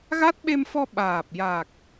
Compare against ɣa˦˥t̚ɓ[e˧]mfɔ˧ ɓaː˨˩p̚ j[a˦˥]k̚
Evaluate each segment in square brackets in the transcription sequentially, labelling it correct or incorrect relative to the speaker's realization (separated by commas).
correct, incorrect